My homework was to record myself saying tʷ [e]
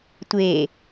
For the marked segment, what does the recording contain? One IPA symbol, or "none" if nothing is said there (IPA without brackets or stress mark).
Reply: e